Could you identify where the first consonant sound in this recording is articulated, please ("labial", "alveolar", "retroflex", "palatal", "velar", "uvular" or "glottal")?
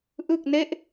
glottal